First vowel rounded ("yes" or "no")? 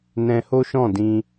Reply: no